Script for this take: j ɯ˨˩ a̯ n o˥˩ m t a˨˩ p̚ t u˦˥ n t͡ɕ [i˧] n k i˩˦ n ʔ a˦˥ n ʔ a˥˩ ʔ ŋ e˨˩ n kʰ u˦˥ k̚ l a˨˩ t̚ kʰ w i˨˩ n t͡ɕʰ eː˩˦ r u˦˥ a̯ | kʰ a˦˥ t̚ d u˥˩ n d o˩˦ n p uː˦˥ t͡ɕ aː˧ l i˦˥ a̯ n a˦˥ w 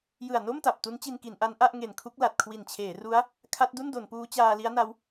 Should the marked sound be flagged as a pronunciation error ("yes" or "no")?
no